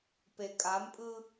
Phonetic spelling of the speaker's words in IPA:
p e kʼ a m pʼ ɯ

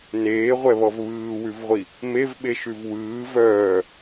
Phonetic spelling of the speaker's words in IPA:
n eː ʁʷ ɛ β ɔ v β ɯː w ʉ v ʁʷ i | m e v ɓ e ʃ ʉ v w ɯː v œː

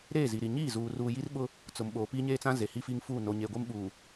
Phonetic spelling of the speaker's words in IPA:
ɾ eː˦˨ z i˨ ɾ i˨ ɲ iː˦˨ z uː˨ r uː˨ j i˦ r ɓ ʊ˦ | t͡s ʊ˨ m ɓ oː˨ p iː˦ ɲ eː˦ t͡s ã˦ z e˨ h i˦ f iː˦ ŋ f uː˦˨ n o˨ ɲ eː˨ ɡʷ e˦ m ɓ uː˨

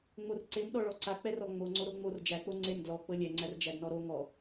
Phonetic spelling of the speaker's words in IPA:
ŋ͡m o r ǀ e m ɗ ɔ ɭ ɔ ǀ a k͡p ɛ r ɔ ŋ͡m o ŋ͡ǀ o ɾ o ŋ͡m o r d͡ʒ æ k͡p o ŋ͡ǀ e m d l ɔ k͡p ɤ lʲ ɛ ŋ͡ǀ æ r d͡ʒ æ d n ɔ ɾ o ŋ ɔ

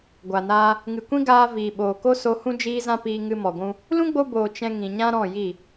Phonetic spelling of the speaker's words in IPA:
ɡʷ a˨ n aː˧ | ŋ ɨ˨ kʷ ĩ˦ ɡ aː˧ v iː˨ ɓ oː˨ k o˦ s o˧ h ũ˦ d͡ʒ iː˦ z ã˦ p iː˧ ŋ ɨ˧ m ɔ˨ ɡʷ ũ˧ | l ũ˦ ɡ͡b o˧ b oː˨ t͡ʃ ɛ̃˧ ŋ ĩ˨ ɲ ã˦ ɾ ɔ̃˦˨ j i˦˨

